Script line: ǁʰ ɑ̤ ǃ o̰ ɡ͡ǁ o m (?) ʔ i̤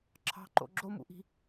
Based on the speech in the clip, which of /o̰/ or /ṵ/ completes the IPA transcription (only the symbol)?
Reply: ṵ